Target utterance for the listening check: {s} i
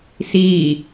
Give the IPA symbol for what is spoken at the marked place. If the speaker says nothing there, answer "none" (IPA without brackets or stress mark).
s